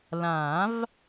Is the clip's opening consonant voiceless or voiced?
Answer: voiced